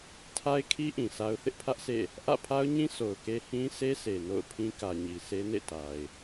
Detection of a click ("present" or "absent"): absent